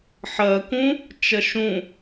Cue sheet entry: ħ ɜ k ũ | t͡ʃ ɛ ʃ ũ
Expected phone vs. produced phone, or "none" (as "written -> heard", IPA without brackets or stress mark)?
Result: ɛ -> ɜ